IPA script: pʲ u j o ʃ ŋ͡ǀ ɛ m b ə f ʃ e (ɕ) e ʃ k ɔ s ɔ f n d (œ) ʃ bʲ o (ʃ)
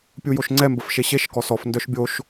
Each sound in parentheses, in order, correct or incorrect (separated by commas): correct, correct, correct